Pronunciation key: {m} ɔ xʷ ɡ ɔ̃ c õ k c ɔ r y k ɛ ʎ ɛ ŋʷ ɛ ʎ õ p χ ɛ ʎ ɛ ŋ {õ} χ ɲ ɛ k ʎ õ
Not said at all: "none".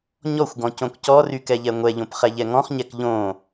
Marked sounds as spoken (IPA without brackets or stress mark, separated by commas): ɲ, ɔ̃